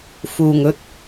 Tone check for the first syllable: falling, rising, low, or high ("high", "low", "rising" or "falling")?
low